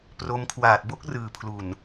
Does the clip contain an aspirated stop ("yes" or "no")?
yes